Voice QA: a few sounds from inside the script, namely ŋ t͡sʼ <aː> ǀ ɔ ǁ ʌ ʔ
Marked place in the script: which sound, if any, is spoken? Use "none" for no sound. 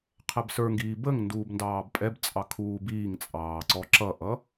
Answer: ɑː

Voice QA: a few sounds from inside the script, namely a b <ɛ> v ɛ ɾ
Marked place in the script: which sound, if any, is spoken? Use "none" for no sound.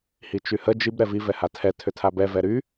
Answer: ɛ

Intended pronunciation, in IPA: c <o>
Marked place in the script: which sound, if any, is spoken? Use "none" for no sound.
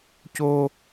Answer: o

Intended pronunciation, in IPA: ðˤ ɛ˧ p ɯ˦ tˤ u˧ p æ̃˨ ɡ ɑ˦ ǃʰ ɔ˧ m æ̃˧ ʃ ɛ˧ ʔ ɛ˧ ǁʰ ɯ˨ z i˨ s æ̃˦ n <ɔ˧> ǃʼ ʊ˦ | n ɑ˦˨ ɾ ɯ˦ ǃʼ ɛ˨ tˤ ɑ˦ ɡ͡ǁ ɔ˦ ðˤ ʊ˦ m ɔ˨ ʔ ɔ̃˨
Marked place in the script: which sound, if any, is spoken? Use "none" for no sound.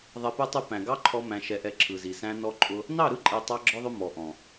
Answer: ɔ˦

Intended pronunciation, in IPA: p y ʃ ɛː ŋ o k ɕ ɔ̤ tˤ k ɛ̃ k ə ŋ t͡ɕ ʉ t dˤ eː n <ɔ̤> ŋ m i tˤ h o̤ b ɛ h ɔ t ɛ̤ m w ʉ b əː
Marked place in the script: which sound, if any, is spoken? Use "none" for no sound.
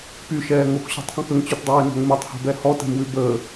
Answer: ɔ̤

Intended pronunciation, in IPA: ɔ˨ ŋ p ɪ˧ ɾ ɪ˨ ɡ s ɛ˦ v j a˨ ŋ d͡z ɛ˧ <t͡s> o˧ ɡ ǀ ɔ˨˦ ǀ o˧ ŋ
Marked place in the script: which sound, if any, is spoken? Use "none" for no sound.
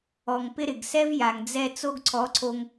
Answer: t͡s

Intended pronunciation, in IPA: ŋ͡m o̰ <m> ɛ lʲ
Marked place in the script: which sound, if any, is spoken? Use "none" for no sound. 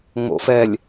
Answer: f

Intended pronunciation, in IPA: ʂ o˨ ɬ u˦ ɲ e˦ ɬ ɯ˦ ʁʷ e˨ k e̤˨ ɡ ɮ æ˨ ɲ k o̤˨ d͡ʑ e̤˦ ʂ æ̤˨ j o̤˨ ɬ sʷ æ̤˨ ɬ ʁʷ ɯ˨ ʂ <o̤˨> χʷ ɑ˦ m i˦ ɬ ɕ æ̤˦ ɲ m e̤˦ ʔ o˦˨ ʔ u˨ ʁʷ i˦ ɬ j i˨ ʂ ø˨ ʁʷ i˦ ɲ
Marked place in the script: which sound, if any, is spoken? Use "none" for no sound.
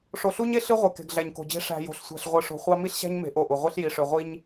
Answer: o̤˨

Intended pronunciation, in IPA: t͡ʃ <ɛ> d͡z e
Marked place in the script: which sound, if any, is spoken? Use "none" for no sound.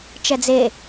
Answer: ɛ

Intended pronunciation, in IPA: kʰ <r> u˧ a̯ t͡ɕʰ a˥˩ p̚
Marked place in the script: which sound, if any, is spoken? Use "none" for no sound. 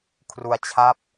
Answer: r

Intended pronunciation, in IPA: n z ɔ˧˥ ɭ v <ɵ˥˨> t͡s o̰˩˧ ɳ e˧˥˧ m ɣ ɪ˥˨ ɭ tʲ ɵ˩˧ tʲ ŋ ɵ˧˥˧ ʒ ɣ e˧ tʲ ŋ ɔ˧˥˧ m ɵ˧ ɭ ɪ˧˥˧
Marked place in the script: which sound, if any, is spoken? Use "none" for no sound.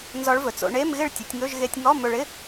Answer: ɵ˩˧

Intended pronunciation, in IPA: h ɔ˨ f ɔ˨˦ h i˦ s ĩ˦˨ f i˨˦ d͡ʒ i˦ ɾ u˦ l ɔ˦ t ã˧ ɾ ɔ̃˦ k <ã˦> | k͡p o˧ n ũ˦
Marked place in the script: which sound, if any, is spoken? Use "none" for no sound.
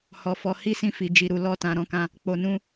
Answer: ã˦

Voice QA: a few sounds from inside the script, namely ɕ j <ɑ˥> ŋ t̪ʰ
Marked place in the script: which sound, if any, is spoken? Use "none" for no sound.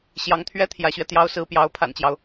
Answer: ɑ˧˥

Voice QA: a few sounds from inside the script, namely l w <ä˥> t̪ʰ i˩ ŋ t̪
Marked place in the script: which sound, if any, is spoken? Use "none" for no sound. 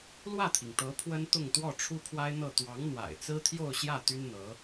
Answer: ä˥˩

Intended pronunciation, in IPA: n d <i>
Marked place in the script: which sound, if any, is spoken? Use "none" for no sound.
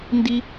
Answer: i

